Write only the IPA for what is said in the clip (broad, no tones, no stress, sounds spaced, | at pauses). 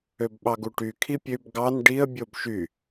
ø b ɓ ɑ ɡ u ʈ y kʰ i pʲ ø b ɡ ɑ n ɖ i ə̯ bʲ o b ʃ y